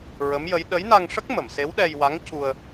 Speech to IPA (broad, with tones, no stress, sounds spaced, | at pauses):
ɹ ə˧˥ m j ə˧˥ j ɗ ə˧˥ j n a˧ ŋ ʂ ə˦˥ k̚ m ə˨˩˨ m s e˧˥ w ɗ ɛ˧ j w a˧˥ ŋ c u˧ ə̯